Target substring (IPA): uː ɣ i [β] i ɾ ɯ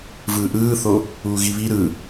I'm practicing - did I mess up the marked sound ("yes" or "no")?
no